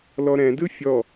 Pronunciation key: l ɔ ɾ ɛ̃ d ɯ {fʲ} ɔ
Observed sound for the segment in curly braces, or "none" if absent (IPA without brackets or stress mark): fʲ